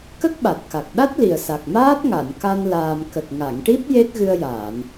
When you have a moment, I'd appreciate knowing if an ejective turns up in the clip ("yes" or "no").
no